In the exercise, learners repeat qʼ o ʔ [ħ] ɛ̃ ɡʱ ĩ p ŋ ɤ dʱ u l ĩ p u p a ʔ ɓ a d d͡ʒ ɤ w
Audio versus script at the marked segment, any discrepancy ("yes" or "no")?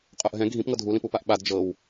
yes